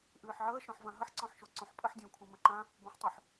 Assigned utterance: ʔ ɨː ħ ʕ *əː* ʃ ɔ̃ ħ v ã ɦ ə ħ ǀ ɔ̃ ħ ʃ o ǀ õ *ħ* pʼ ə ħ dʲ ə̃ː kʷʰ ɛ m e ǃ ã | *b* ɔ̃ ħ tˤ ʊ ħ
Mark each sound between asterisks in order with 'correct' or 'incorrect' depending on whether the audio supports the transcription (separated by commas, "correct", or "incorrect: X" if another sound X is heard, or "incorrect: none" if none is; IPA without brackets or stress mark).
correct, correct, correct